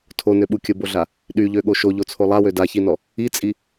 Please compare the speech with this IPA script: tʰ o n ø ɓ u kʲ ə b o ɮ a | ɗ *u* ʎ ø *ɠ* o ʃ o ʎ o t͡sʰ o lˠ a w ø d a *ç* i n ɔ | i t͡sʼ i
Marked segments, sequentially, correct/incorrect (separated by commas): incorrect, correct, correct